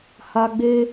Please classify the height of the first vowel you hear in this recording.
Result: low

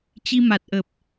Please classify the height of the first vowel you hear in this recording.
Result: high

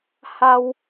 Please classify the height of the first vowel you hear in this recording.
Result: low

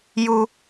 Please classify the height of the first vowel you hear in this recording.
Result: high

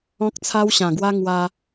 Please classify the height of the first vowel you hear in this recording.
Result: mid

